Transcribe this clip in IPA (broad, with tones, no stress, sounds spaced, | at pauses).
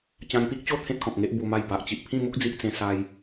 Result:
t͡ɕ ã˧ ŋ t̪ i˦ k̚ t͡ɕ o˥˧ t̪ʰ ẽ˦ t̚ k ɔ̃˨ k̚ ŋ e˦ ʔ b u˧ m a˥˧ j b a˨ ʔ t͡ɕ i˨ ʔ pʰ ĩ˥˧ m u˦ k̚ d͡z i˦ ʔ t͡s ẽ˦ s a˦ j